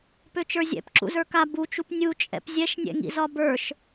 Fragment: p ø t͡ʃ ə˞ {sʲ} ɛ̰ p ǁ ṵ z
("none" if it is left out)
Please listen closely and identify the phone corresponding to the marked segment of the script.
zʲ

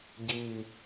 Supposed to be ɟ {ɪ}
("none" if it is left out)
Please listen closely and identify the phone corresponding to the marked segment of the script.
i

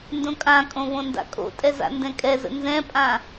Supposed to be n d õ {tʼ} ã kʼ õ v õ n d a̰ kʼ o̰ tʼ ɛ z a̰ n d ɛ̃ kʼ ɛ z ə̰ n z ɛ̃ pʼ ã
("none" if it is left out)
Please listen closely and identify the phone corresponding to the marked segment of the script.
kʼ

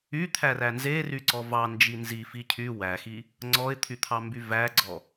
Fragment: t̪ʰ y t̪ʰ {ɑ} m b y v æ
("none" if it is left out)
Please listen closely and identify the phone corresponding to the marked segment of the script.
ɑ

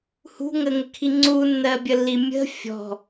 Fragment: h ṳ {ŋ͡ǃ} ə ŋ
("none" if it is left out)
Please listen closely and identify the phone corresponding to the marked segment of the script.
ŋ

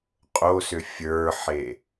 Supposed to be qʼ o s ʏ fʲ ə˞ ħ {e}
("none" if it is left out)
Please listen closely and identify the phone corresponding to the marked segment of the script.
e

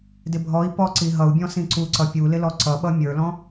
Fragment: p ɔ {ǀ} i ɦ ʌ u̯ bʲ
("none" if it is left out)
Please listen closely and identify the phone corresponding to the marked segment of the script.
ǀ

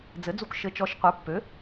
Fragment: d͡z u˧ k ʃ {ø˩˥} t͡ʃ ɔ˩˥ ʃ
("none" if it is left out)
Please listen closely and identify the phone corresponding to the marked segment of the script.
ɘ˩˥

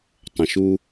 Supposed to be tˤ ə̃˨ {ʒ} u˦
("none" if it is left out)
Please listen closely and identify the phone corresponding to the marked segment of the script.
ʃ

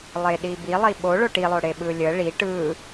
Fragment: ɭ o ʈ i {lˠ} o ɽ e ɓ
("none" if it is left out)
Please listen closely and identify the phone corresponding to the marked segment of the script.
lˠ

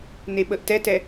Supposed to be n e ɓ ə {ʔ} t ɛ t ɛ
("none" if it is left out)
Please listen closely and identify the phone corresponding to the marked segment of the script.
ʔ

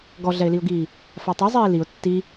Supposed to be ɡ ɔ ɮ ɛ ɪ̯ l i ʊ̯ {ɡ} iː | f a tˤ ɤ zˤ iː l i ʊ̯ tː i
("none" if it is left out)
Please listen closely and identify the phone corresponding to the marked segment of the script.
ɡ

